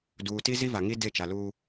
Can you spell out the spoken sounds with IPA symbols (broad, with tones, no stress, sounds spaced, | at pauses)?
d uː˨ t i˦ z i˦ v a˨ ŋ i˦ d e˦˨ t͡ʃ a˨ l uː˦